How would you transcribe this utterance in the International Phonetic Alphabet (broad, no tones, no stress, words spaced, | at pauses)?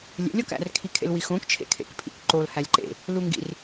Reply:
lʲḛlʲɒkæ̰r kʰikʰḛlwixõk t͡ʃʰḛkʰḛkpʰḭkǃol hælʲǃḛ | luŋɡḭr